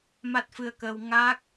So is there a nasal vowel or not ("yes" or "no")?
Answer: no